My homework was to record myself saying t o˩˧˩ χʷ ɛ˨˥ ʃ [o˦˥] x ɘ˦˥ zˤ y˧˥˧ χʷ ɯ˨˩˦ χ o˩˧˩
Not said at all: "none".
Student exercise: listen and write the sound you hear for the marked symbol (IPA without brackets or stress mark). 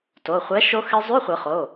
o˦˥